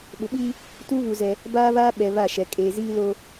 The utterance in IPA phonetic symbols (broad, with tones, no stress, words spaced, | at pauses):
ɓʊ˨ɓiː˦ | tuː˦βu˨ zɛ˦ | baː˦βaː˦ ɓɛ˨ βa˦˨ʃɛ˨ kʼeː˨ziː˦lo˦